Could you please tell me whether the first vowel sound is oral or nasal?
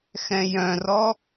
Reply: nasal